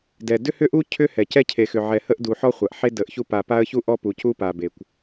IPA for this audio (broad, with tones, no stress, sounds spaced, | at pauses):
d ɛ˨ d ʏ˦ h ʏ˦ ʔ u˦ cʰ ʏ˦ h ɛ˨ c ɛ˦ cʰ e˨ x ʏ˨ ʕ ɛ˨ h ə˦ ʔ d u˨ ħ ɔ˦ χʷ a˨ ʔ ħ e˦ d ə˨˦ ʔ ç u˦ p a˨ p a˦ ə̯ ç u˦ ʔ ɔ˦ p u˨ c u˦ p a˨ b e˨ kʷ